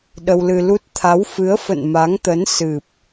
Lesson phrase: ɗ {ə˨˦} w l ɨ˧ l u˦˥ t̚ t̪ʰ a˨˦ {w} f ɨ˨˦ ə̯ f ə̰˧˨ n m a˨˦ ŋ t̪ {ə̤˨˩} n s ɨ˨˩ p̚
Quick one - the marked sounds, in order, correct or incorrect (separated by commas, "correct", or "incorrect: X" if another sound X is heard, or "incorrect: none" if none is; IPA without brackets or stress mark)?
incorrect: ə˧, correct, incorrect: ə˨˦